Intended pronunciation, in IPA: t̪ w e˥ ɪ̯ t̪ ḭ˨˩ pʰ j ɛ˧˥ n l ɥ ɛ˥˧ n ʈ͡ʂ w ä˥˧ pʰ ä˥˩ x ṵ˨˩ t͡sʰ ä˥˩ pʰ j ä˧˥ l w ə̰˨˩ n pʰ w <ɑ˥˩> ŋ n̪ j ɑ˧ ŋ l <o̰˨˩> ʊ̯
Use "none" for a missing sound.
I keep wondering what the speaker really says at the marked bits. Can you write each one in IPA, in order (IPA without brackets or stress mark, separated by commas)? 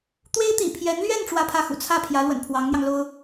ɑ˧˥, o˥